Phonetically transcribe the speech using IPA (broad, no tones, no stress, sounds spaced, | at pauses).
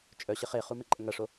t͡ʃʼ œ ɕ ɪ χ e χ u m e ǃʼ ə ŋ ɐ ʂ o